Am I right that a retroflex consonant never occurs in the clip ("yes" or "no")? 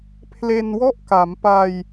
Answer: yes